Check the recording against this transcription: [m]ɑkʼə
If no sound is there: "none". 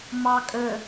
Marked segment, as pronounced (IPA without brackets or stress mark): m